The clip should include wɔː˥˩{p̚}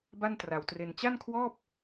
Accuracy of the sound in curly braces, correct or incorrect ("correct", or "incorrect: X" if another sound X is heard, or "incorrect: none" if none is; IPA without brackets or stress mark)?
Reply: correct